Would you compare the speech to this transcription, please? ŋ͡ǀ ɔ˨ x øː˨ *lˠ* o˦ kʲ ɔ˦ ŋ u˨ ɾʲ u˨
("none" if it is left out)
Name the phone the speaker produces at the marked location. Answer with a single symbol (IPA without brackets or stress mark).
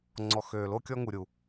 l